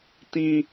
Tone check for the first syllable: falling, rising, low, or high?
high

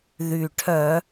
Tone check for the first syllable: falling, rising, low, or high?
low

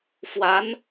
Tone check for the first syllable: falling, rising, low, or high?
rising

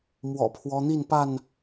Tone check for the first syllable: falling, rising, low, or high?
low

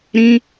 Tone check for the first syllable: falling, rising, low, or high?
high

